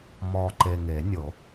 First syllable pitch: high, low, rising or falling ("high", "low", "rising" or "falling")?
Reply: low